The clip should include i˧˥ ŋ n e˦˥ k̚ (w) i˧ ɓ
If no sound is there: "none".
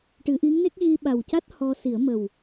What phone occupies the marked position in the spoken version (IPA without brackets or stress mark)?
ɣ